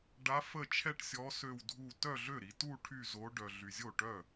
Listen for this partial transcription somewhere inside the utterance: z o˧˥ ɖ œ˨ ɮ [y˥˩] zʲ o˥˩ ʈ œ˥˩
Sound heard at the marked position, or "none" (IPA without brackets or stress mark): y˨